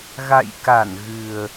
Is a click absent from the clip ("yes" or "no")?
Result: yes